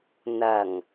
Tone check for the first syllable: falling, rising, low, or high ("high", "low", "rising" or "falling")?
low